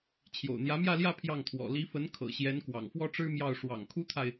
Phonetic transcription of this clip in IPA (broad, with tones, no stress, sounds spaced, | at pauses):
t͡ɕʰ j o̰˨˩ ʊ̯ n̪ j ä˧˥ m j ä˥˧ l j ä˥˧ pʰ j ɑ˥˩ ŋ t̪ʰ w ɔ̰˨˩ l i˧˥ f ə˧˥ n kʰ ɤ̰˨˩ ɕ j ɛ˧˥ n k w ɑ̰˨˩ ŋ f w ɔ˥ ʈ͡ʂ ɻ̩˥ m j ɑ˥˩ ʊ̯ ʂ w ɑ̰˨˩ ŋ kʰ u˥ t̪ʰ a˨ ɪ̯